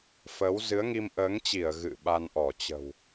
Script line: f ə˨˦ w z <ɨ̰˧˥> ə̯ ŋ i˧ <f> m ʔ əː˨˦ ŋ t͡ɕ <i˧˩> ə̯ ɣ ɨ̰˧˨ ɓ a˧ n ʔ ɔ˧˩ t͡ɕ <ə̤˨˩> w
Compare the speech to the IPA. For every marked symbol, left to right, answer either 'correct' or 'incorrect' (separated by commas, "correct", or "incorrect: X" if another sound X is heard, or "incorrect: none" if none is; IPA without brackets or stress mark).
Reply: incorrect: ɨ˨˦, incorrect: none, correct, correct